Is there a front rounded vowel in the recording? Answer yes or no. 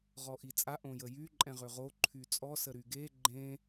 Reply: yes